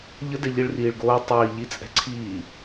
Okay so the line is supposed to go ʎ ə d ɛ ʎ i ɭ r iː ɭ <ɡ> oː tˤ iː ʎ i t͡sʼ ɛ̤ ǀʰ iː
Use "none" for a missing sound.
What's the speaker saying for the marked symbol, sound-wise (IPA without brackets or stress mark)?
ɡ